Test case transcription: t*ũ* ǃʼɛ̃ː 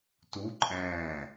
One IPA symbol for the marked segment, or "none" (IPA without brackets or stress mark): u